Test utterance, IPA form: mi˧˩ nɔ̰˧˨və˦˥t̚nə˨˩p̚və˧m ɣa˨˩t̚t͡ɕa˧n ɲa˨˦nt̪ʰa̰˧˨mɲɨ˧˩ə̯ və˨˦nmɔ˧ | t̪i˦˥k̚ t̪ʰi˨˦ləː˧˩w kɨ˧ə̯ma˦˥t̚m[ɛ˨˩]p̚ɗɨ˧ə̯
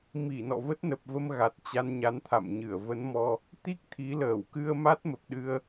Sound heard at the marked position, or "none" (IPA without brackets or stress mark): ə˨˩